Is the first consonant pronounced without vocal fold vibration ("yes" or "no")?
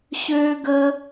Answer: yes